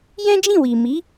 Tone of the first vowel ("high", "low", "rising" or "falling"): high